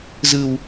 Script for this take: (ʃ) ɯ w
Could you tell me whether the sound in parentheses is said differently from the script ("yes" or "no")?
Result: yes